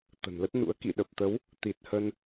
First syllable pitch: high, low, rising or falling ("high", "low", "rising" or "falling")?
low